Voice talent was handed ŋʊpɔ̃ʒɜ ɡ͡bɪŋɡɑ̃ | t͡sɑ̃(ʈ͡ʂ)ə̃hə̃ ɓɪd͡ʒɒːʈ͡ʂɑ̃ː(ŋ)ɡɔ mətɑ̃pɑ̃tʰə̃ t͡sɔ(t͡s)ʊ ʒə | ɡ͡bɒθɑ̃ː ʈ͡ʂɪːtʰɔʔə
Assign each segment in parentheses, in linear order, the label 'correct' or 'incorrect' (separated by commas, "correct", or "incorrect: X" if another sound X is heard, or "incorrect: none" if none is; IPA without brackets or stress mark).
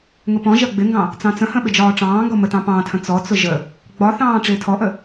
incorrect: t͡s, correct, correct